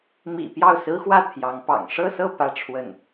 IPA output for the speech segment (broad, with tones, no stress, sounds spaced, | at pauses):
m ḭ˨˩ p j ɑ˥˩ ʊ̯ s ɹ̩˥ x w ä˥˩ t̪ʰ j ɑ˧˥ ŋ p ɑ̰˨˩ ŋ ʂ ɤ˥˧ s ɤ˥˧ p ä˥˧ ʈ͡ʂʰ w ə˥˩ n